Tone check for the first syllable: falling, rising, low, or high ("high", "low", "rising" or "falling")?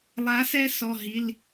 rising